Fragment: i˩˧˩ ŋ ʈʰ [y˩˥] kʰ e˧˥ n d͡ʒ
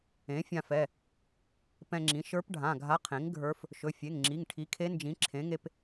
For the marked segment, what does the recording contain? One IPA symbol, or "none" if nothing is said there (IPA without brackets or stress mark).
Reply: i˩˥